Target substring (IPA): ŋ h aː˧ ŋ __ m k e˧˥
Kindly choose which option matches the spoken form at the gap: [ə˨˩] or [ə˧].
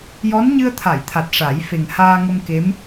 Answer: ə˧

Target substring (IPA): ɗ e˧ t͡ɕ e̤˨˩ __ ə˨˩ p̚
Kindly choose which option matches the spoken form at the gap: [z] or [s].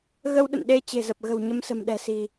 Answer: z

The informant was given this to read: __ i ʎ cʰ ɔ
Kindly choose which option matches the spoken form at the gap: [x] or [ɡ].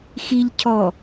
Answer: x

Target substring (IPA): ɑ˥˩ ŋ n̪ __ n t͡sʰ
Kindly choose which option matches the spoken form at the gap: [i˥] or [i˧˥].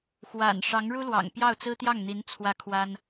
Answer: i˧˥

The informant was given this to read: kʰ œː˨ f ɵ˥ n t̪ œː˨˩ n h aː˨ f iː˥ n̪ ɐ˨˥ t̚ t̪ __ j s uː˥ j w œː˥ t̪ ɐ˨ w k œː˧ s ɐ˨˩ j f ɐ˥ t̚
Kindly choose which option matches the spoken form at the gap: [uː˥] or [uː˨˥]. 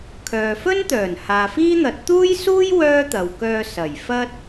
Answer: uː˥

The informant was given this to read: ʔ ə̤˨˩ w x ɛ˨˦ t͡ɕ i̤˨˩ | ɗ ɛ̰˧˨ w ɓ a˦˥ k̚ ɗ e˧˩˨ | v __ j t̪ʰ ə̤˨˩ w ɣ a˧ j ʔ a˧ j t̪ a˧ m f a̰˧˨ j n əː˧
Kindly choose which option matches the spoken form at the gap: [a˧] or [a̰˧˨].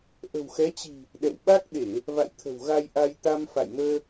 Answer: a̰˧˨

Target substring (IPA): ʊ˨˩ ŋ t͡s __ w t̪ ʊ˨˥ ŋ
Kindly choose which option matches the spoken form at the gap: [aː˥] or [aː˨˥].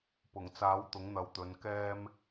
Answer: aː˨˥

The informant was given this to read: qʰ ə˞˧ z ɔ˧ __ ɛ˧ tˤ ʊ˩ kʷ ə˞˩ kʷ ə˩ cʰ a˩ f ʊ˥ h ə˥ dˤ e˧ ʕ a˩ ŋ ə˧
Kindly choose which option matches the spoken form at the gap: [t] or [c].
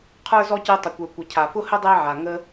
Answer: c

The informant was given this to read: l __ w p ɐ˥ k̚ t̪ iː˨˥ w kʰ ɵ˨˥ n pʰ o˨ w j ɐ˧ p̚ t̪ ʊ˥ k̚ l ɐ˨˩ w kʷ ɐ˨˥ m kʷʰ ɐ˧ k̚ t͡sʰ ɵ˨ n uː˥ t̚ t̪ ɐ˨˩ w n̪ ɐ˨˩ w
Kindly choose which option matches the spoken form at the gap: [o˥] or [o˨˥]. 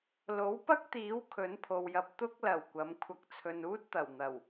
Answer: o˨˥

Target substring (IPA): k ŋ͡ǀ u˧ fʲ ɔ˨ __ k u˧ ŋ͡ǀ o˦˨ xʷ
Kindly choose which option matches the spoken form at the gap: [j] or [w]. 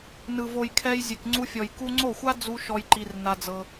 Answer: j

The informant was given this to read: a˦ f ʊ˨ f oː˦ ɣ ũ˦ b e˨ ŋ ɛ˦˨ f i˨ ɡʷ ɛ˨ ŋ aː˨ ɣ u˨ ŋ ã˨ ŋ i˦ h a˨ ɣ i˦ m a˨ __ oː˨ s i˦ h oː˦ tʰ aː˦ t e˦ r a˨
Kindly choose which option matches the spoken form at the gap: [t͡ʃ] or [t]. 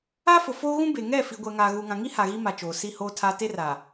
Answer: t͡ʃ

